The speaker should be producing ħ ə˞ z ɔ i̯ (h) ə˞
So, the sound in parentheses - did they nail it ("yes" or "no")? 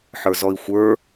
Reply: no